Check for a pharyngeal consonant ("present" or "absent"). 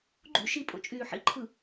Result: present